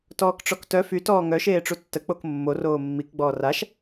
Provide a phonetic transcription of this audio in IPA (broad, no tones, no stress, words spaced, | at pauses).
tɔːkʈ͡ʂɔktœ fy tɔːŋœ ʃeːʈ͡ʂutːə k͡pokmːor oːmːik ɡ͡bɔːraʃ